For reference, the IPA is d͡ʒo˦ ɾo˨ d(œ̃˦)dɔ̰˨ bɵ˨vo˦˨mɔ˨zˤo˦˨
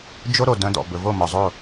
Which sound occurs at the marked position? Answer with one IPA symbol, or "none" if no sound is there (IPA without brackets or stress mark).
œ̃˦